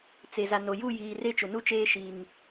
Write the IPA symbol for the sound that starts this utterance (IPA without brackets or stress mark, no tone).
t͡s